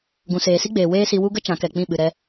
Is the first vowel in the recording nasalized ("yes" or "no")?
yes